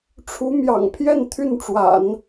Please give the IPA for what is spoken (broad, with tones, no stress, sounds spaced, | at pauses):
ʈ͡ʂʰ u˧˥ m j ɑ̰˨˩ ŋ pʰ j ɛ˥˧ n t̪ʰ y˥˩ n ʈ͡ʂ w a̰˨˩˦ n